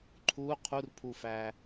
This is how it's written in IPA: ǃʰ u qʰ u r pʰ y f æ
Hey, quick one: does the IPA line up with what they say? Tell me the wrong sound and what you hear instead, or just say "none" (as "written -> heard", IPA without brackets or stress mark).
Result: y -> u